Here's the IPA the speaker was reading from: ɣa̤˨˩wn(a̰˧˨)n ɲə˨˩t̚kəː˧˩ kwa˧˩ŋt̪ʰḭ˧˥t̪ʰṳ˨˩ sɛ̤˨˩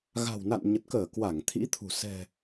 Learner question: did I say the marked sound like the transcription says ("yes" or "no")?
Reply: yes